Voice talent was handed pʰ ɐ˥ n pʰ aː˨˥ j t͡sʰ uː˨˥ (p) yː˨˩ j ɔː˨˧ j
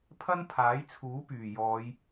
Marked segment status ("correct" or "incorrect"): correct